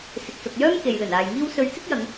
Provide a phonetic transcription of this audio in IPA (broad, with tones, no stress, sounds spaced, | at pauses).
s ɪ˨ k̚ s ʊ˨ k̚ j œː˥ m k e˨ j l ɵ˨˩ n aː˨ j ŋ iː˥ w s ɵ˧ ɥ t͡s ɪ˥ k̚ j ɐ˨˧ ŋ